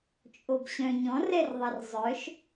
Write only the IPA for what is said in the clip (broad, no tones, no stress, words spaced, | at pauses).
t͡ʃʼobɕœ̃ ɲɔ̃rɛrðˤɛr zˤœʃ